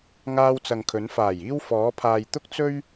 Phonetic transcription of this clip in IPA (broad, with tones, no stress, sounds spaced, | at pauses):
ŋ aː˧ w t͡s ɐ˨ ŋ kʰ ɵ˨˧ n f aː˨˩ j iː˧ w f ɔː˨˧ pʰ aː˨ j t̪ ʊ˥ k̚ t͡s ɵ˥ ɥ